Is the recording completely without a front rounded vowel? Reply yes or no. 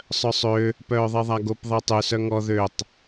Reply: no